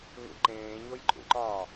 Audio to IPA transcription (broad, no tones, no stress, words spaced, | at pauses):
ŋṵǃẽːɲoj ǃʼṵǃɒː